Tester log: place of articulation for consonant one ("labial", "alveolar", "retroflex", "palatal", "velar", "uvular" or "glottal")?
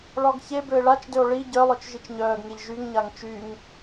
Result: retroflex